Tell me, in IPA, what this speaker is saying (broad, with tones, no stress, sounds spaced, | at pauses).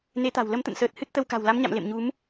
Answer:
n e˨˦ t̪ a̤˨˩ w l ə˨˦ m t̪ ə̰˧˨ n s əː˨˩ t̚ h ɨ˦˥ t̚ t̪ ə˧ w k a̤˨˩ w l a˨˦ m ɲ a̰˧˨ m l ḛ˧˨ m ɲ u˨˦ m